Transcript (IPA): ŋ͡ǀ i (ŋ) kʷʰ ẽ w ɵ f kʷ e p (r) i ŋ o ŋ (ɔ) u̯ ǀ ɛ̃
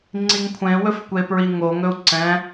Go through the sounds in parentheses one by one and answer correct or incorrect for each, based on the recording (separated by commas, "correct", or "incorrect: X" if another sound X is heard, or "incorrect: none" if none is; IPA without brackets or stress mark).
correct, incorrect: ɹ, incorrect: ɵ